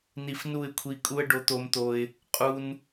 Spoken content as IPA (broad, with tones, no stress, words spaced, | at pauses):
ni˧fnu˦˨ɪ̯kʷʰi˧kʼu˦ə̯ ɖo˧t̪o˧mt̪o˧ɪ̯ | qʼu˧n